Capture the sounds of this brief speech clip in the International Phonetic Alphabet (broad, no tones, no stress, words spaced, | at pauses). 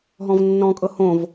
ɦɔ̃vnːɔ̃kʼɤ hõv